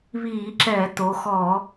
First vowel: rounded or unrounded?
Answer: unrounded